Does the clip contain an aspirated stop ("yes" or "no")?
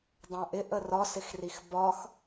no